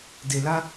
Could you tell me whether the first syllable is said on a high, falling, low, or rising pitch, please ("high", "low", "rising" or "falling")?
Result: low